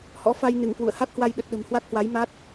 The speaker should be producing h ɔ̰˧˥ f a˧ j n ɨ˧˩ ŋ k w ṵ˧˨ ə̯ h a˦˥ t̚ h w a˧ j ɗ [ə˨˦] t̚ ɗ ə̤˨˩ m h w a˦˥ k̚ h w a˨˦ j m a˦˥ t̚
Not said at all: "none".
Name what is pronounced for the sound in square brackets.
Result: ə˨˩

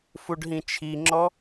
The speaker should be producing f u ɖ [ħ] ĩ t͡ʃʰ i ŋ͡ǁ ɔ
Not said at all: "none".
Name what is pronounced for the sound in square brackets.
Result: ɦ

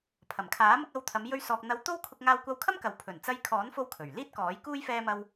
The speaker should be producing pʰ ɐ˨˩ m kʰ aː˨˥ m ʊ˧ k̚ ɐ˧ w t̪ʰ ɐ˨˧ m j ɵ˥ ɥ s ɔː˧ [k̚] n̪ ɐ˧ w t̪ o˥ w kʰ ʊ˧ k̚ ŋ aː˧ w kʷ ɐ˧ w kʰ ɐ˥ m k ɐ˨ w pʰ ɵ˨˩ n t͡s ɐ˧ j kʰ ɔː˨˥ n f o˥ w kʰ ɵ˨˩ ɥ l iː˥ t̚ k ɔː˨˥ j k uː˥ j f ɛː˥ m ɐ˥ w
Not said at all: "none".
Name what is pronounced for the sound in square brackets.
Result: k̚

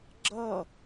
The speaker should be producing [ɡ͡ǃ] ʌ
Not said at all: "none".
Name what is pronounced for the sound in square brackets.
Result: ɡ͡ǁ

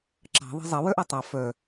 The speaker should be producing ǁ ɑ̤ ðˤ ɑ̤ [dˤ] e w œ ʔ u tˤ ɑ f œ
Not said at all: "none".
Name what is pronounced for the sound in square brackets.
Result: zˤ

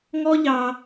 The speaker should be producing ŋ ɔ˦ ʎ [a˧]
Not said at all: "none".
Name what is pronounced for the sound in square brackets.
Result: ɑ˧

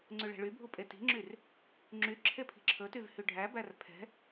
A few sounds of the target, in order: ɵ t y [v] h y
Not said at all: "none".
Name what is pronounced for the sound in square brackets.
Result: v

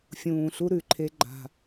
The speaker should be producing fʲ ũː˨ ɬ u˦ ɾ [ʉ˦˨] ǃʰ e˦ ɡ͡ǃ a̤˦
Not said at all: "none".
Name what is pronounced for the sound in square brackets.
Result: ʉ˨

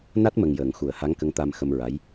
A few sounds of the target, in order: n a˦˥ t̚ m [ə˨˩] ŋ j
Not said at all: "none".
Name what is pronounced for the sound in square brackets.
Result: ə˨˩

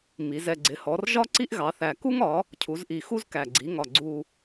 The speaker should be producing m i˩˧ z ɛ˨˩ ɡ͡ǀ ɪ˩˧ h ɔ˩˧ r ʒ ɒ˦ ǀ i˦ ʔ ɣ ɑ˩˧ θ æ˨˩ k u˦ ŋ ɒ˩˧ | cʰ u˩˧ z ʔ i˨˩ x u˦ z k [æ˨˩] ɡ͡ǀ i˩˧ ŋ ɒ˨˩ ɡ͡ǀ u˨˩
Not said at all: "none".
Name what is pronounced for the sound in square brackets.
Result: æ˨˩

